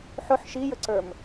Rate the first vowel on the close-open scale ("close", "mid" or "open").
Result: close